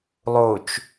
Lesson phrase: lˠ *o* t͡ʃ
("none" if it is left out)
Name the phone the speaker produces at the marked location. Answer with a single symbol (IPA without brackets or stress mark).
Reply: o